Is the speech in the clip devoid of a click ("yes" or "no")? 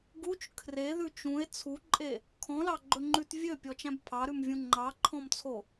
no